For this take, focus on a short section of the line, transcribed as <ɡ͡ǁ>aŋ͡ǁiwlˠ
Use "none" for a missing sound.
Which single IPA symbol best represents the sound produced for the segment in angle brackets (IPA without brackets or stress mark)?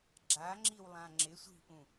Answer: ɡ͡ǁ